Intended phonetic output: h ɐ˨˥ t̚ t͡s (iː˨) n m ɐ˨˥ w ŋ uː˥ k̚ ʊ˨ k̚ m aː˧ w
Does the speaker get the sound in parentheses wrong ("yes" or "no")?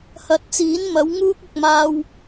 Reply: yes